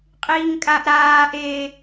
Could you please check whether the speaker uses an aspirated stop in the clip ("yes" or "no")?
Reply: no